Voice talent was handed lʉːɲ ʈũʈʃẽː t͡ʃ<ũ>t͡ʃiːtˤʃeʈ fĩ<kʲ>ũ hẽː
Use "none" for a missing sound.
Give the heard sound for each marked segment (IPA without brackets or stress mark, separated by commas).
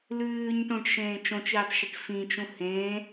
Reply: õ, t͡ʃ